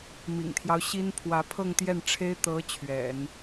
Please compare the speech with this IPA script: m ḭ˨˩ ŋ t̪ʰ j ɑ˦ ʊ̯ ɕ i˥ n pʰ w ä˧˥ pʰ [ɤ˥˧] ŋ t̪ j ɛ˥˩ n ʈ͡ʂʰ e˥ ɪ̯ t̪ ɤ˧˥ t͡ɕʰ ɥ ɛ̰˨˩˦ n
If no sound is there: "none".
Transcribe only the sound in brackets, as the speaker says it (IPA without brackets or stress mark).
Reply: ɤ˥˧